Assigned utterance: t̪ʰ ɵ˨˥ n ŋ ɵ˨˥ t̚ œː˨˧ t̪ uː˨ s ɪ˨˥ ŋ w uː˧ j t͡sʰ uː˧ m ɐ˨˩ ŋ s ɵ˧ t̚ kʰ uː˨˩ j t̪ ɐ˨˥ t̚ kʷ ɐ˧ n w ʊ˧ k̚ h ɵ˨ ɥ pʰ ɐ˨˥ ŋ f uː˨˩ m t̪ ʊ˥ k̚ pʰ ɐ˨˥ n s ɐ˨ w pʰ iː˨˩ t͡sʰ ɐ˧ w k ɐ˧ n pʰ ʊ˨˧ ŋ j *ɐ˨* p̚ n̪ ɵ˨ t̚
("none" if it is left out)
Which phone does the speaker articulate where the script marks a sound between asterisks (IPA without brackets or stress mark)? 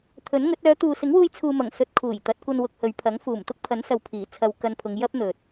ɐ˥